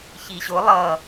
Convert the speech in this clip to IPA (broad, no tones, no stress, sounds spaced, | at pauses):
ç i ɕ ʊ lˠ ʌ